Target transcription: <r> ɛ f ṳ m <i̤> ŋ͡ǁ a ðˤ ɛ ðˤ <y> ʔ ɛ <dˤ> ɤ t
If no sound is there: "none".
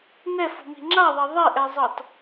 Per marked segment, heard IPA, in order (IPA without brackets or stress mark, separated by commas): n, i̤, e, zˤ